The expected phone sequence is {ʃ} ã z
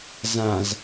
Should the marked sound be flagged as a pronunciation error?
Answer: yes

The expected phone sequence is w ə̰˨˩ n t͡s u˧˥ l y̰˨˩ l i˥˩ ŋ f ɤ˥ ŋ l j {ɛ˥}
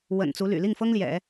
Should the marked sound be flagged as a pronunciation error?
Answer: yes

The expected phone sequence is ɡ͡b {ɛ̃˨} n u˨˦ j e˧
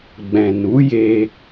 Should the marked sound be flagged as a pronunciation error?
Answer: no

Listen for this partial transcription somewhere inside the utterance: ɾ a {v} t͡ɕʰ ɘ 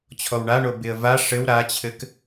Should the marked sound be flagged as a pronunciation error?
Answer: yes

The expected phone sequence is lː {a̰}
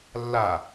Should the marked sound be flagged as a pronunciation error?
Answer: yes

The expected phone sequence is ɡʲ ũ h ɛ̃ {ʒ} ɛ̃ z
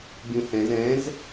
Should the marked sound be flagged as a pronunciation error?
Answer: yes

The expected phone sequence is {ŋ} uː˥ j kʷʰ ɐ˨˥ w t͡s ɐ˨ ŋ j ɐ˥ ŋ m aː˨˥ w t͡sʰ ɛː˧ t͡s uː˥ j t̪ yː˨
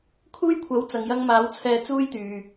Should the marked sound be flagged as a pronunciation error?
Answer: yes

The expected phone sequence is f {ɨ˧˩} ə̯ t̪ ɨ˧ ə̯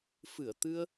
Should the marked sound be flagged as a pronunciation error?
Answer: no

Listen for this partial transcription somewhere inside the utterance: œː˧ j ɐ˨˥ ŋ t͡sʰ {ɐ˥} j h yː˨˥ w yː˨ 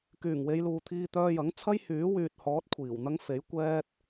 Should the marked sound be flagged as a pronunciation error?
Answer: no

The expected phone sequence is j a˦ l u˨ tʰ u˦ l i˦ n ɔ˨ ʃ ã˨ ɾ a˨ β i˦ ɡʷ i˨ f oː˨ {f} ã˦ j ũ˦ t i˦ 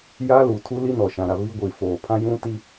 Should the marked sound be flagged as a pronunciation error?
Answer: yes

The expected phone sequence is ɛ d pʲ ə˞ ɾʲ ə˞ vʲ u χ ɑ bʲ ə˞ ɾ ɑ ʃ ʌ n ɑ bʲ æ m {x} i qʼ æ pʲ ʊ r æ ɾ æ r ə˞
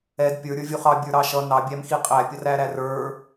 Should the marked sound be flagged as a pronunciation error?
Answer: no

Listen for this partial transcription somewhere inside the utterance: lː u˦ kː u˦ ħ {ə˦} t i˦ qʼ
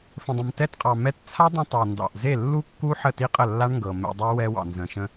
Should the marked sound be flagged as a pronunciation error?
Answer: yes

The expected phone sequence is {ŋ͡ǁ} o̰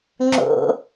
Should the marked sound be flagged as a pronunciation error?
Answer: no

